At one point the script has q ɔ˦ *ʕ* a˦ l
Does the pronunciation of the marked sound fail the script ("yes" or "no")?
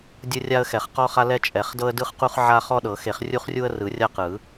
yes